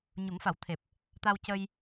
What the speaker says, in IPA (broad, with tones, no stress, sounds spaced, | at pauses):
ɲ u˨˩˦ ŋ f a˨˩˦ w t̪ʰ e˨˩ p̚ | t̪ a˧ w c ə˧ j